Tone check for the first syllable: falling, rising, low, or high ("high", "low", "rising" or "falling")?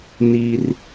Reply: high